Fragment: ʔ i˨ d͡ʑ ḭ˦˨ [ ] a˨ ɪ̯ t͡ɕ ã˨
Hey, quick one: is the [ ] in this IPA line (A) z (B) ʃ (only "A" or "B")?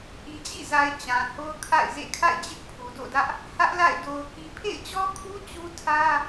A